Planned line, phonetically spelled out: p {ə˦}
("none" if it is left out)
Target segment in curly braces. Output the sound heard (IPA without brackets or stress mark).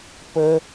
ə˦